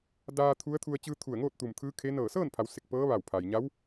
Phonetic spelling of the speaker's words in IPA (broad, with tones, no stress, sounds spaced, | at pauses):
d aː˧ t̪ʰ u˧˥ ə̯ t̪ʰ u˧ ə̯ t͡ɕ ɯː˧ t̪ʰ u˧˩ ə̯ ŋ oː˥˨ t̚ t̪ u˧˩ m t̪ʰ ɯː˧˥ kʰ e˧˥ n ɤː˧˩ s ɤː˥˨ n pʰ a˩˧ w s e˧˩ k̚ p ɤː˧˥ ʋ a˧˩ w pʰ a˩ j ɲ a˧˥ w